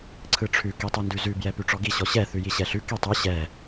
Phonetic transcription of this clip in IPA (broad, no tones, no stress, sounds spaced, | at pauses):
ǀʰ ɯ ʈ͡ʂʰ ʉ k i tˤ ɯ n d ʉ z ʉ b j ɛ p ʉ ʈ͡ʂ ɔ ɡ i ɕ ɔ ɕ ɛ θ ʉ j i ɕ ɛ ɬ ʉ k i tˤ ɯ ɕ ɛ